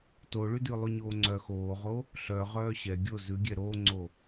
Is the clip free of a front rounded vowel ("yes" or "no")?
no